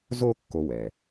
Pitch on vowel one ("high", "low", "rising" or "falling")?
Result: high